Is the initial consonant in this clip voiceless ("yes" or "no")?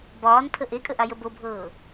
no